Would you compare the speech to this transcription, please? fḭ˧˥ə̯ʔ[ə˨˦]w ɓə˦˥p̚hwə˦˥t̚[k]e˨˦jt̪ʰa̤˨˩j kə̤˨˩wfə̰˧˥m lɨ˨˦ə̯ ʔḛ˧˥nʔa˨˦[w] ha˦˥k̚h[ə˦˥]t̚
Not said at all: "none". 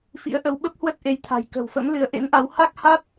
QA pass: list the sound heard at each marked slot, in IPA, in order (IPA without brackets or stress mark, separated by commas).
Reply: ə˨˦, ʔ, w, a˦˥